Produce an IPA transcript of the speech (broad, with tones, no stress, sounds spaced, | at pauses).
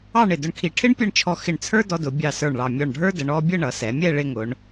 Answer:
ɑ˥˧ ɳ ɪ˧˩ d ʊ˧ ɳ kʰ i˧˩ ʈʰ ɪ˥ ɳ pʲ ʌ˥˧ ɳ t͡ʃʰ ɔ˧ x ɪ˧˩ ɳ t͡sʰ ə˞˥ d ɔ˧ d ʊ˩˧ bʲ ɑ˧˩ s ə˞˧˩ ɳ ɭ ɑ˧˩ mʲ ɔ˧˩ ɳ ɖʱ ə˞˥ d ə˩˧ ɳ ɔ˧ bʲ ə˥˧ ɳ ʌ˩˧ s ɛ˩˧ mʲ ɛ˥˧ ɭ ɪ˥˧ ŋ ʊ˩˧ ɳ